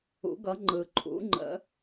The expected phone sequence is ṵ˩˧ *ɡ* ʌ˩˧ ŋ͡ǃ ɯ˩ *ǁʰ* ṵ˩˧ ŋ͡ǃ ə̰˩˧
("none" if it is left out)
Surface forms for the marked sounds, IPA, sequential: ɡ, ǃʰ

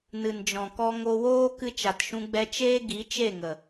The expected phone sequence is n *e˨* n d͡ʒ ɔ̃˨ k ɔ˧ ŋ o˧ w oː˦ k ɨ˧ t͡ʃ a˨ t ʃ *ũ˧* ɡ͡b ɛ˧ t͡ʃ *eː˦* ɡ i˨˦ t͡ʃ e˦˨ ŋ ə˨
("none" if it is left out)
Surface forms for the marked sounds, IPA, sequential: ɨ˨, ũ˧, eː˦

